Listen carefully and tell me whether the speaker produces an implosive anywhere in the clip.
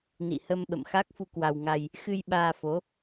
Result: yes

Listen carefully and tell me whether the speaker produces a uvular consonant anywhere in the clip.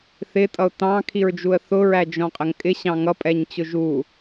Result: yes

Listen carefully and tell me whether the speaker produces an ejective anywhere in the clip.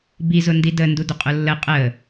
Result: yes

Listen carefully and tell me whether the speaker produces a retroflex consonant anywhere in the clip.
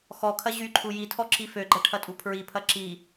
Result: yes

